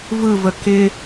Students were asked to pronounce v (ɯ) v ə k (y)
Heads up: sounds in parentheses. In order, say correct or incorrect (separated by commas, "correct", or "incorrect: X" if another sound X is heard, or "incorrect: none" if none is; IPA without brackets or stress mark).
correct, incorrect: ɪ